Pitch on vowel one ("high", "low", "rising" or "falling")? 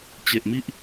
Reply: low